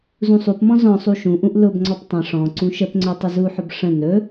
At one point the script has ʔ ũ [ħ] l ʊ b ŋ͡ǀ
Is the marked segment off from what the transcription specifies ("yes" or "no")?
yes